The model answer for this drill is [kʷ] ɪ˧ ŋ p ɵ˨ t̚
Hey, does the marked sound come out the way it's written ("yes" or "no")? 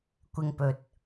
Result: yes